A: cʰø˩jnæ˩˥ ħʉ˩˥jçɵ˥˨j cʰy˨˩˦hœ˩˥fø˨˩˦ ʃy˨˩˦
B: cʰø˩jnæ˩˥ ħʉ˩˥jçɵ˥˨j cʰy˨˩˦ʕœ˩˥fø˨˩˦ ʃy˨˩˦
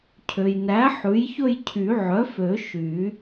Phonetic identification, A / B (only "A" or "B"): B